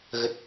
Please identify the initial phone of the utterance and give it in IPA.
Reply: ɣ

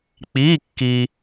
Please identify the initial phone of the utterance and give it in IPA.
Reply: k͡p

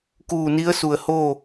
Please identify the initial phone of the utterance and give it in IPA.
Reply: k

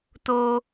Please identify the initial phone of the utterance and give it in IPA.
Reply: t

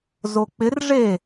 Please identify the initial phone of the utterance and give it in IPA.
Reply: z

